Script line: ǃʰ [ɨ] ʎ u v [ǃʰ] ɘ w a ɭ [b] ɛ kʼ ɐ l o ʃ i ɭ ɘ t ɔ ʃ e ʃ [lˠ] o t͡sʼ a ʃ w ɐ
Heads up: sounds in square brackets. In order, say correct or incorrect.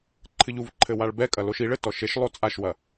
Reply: correct, correct, correct, correct

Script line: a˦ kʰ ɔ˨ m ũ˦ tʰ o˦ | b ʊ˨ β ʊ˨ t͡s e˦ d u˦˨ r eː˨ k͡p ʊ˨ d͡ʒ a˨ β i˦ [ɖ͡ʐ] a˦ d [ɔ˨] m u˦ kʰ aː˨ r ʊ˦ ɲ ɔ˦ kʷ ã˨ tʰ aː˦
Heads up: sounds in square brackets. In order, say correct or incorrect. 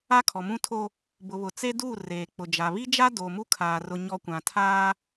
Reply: incorrect: d͡ʒ, incorrect: o˨

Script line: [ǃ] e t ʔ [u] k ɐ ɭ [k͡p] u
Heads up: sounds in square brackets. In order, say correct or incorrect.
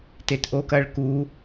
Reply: incorrect: t, incorrect: o, incorrect: k

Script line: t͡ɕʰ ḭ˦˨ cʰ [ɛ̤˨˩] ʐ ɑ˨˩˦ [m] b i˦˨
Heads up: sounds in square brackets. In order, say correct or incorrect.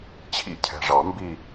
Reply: correct, correct

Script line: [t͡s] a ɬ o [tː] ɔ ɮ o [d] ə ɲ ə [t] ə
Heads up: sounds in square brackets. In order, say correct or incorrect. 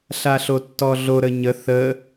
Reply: incorrect: ɬ, correct, incorrect: ɾ, incorrect: θ

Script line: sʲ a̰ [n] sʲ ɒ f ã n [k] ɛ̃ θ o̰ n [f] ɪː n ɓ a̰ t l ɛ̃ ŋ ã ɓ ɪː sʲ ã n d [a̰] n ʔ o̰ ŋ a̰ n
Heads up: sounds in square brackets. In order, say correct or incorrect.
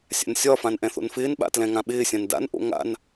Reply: correct, incorrect: ʔ, correct, correct

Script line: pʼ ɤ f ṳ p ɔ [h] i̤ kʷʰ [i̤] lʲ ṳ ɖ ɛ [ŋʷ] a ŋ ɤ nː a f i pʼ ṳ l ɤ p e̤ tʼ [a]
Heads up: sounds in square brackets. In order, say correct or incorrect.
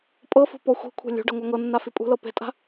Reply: incorrect: xʷ, incorrect: e̤, correct, incorrect: a̤

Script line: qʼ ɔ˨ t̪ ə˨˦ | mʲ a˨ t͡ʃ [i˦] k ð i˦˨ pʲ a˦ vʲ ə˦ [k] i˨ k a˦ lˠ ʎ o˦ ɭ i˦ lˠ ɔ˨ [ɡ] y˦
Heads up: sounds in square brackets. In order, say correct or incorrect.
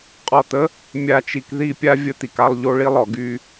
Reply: incorrect: i˨, incorrect: t̪, correct

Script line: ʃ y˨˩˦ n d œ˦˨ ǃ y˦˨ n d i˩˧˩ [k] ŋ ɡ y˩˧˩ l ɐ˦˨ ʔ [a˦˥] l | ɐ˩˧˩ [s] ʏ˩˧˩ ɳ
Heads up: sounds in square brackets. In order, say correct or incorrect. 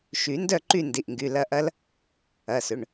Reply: incorrect: ʔ, incorrect: ɐ˦˥, correct

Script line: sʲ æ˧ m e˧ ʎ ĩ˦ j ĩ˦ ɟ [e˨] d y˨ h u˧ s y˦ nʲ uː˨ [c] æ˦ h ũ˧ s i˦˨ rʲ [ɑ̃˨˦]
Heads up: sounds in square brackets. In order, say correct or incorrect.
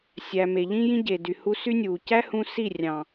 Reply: correct, correct, incorrect: ɑ̃˨

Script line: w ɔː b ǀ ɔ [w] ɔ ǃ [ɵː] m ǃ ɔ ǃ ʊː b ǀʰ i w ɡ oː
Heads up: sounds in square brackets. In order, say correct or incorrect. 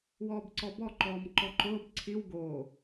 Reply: incorrect: b, incorrect: ɔː

